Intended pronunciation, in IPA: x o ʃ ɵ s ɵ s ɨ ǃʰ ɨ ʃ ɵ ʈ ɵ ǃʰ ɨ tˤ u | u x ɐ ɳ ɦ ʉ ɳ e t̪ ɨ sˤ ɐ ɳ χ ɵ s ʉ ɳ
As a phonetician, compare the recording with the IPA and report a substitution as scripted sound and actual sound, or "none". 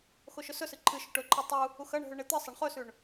none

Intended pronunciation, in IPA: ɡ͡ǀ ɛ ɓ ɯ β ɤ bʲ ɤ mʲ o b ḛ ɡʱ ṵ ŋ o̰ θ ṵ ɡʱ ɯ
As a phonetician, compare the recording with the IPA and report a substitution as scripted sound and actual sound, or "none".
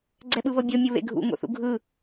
b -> β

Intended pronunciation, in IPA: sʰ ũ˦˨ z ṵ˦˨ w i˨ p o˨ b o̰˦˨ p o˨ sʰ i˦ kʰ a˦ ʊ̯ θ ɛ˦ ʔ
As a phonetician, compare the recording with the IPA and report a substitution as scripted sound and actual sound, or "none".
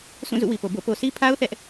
kʰ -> pʰ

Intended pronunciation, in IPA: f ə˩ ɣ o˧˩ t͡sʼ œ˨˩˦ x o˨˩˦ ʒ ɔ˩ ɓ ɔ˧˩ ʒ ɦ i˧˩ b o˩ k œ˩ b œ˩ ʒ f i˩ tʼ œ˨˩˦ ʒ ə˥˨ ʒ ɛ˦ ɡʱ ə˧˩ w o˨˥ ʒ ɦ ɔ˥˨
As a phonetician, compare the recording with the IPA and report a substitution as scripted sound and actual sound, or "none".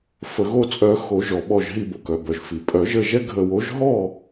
tʼ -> pʼ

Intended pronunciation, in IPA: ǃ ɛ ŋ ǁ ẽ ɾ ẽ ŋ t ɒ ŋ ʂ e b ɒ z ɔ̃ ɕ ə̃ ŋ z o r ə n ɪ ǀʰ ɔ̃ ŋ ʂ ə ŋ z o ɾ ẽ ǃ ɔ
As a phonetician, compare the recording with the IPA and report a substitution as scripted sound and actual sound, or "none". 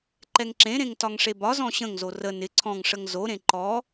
none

